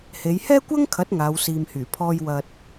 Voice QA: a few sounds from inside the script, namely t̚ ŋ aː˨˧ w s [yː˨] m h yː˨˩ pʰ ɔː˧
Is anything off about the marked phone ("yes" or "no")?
yes